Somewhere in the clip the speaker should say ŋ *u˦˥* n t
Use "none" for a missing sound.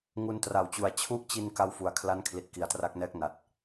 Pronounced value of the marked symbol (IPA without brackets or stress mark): u˧